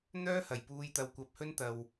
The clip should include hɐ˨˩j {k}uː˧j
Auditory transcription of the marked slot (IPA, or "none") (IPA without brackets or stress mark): p